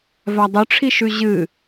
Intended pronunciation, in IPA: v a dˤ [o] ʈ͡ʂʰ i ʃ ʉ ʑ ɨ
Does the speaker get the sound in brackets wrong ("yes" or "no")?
yes